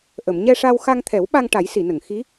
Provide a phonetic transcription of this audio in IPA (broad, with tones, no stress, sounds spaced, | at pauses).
ʔ ə˨˩˨ m ɲ ɛ˧ ʂ a˧ w x a˧ ŋ t̪ʰ ɛ˨˩˦ w ɓ a˧ ŋ ʈ a˨˩˦ j s i˨˩˨ n ə˨˩˨ ŋ x i˧˥